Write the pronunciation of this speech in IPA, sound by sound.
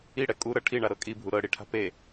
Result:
i ɽ ɛ kʼ u ɾ ɤ ʈʰ i ɳ a ɾ ɤ kʼ i bʱ u ɾ ɤ ɽ i ʈʰ a̤ p e

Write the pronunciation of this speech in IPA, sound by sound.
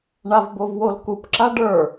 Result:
ɳ a v b o v w o l k u p ǁ a ɖ ə˞

